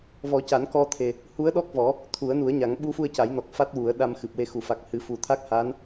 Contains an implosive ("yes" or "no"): yes